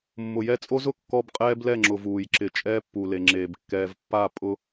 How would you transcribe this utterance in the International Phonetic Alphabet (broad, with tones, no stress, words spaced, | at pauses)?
mːʊ˨jɛ˦t͡sʼo˦zʊ˨ kːɔ˦bqʼɛː˦blɛ˦˨ŋ͡ǁʊ˨v uː˨jǁɪ˨ t͡ʃʼɛː˦ pːu˨le˨ŋ͡ǁeː˨b kːɛː˨v pːa˦˨ pʼʊ˦